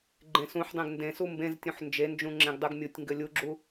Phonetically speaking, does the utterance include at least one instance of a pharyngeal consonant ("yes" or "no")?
yes